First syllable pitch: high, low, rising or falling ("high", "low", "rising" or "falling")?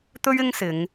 high